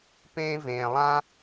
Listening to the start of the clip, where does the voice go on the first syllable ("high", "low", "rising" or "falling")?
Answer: high